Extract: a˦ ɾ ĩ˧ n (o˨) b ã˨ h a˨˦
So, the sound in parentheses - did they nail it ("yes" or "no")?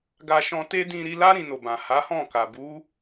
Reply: yes